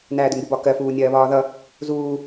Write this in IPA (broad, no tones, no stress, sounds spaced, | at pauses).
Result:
n æː d ʊ ŋ ɡ u b ɒ k ɜ f uː nʲ ɜː β ɒː ð ʌ | z uː